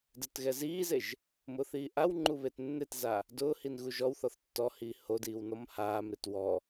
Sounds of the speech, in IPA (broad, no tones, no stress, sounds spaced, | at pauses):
d e t ɣ ɛ z iː z e ʒ | m ʊː θ iː ʔ a w ŋ͡ǃ u β e t nː e t z a | d ʊː h i n ɣ u ʒ ɔ w θ ɔ θ tː ɔ h iː h o d iː w n ɔ m h aː m ɾ ɪ t w ɔ